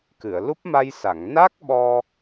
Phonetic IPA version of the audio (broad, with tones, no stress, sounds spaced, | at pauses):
k ɨ˨˩˨ ə̯ l u˦˥ p̚ m a˧ j s a˨˩˨ ŋ n a˦˥ k̚ ɓ ɔ˧